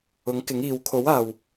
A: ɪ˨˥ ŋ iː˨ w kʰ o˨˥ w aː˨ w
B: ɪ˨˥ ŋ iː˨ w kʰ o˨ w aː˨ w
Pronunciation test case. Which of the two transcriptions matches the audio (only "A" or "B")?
A